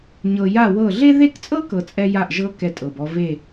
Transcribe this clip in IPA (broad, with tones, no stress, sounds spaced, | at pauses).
ɲ ɤ˨ j a˥˨ w ɤ˥˨ ɮ e˥ ð e˥˨ k t͡sʼ ɤ˥ k ɤ˨ t͡sʼ ɛ˥ j a˥˨ ʔ ʒ ɤ˥ k ɛ˥ tʼ ɤ˨ b ɔ˥ v e˥˨